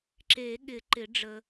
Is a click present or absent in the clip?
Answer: present